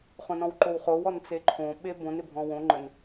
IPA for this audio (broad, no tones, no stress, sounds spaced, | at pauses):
χ õ n ɔ̃ w ǃ o w χ o w ɔ n t͡s e ǃʰ õ ɓ e b õ n ɪ bʱ ɔ̃ w õ ŋ͡ǃ ə n